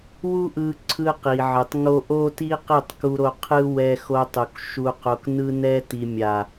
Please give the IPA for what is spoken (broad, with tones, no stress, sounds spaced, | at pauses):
w u˦ ʔ ɯ˧ ǀʰ ɯ˧ q i˨ ʕ ɯ˨ tˤ ŋ o˦ ʔ o˦ t i˦ q i˦˨ tˤ k u˧ ɾ o˧ qʰ ɯ˦ w ɛ˧ x o˧ tˤ u˨ k ʃ u˧ q o˧ k n ɯ˧ n ɛ˧ t i˨ mʲ a˨